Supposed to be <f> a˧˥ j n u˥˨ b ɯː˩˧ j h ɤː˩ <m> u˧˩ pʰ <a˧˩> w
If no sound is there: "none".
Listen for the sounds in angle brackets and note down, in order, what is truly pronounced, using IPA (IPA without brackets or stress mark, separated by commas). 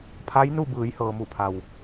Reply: pʰ, m, a˩